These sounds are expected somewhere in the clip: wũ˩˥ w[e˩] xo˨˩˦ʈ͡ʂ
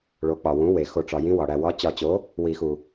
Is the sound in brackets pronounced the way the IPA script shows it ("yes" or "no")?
yes